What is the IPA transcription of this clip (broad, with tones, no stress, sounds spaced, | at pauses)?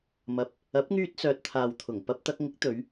m ɐ˨ p̚ | ɐ˨˥ p̚ ŋ yː˧ t̚ s œː˨ t̚ t̪ʰ aː˨ w t̪ʰ ʊ˨˩ ŋ p ɐ˧ p̚ t̪ ɐ˧ k̚ ŋ ɪ˨˥ k̚ t̪ ɵ˨˧ ɥ